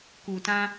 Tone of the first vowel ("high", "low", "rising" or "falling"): low